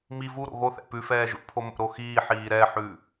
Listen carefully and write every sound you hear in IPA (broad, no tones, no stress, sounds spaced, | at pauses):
m i v u ɾ o̰ ɣ o θ ɛ̰ p ʉ f ɛː ʒ ṵ pʰ o m o̰ ɾ o x iː ħ iː ɾ ɛ ħ ʉ